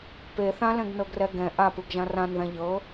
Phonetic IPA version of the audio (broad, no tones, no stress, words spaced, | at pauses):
pe θãlɛ̃ɡnɤɡrɛ ɡɛ̃ ʔapɯɡʒã rãnðã ʎɤ